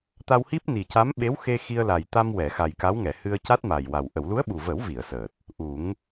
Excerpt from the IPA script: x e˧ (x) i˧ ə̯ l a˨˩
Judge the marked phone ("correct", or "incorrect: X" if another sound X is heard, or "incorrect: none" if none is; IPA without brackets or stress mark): correct